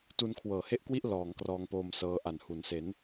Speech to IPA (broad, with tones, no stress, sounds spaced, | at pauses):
t u˧ n kʰ w ɤː˨˩ h e˥˩ ʔ k w i˥˩ ʔ l ɔː˩˦ ŋ k r ɔː˧ ŋ p oː˧ m s ɤː˧ ʔ a˨˩ n h u˩˦ n s e˩˦ n